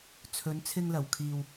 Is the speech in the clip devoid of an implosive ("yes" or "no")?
yes